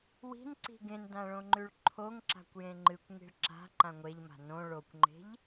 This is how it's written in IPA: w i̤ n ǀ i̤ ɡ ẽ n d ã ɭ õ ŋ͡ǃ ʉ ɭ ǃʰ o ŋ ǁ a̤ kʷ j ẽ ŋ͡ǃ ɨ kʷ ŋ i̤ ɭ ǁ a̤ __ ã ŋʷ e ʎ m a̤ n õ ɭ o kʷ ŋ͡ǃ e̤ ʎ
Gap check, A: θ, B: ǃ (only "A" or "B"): B